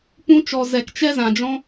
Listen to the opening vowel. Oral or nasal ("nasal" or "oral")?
nasal